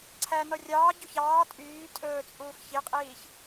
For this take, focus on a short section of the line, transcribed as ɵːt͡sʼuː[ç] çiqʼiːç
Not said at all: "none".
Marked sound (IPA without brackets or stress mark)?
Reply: x